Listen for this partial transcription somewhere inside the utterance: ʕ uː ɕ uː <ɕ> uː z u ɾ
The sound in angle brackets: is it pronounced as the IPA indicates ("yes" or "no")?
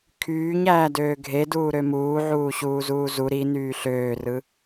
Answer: no